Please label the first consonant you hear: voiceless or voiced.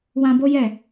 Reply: voiced